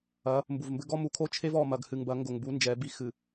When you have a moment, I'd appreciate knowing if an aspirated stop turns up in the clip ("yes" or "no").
yes